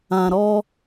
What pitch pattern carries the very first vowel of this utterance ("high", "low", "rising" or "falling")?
low